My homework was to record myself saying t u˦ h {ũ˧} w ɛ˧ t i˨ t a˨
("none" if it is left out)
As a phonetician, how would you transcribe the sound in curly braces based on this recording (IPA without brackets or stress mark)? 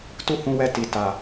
ũ˧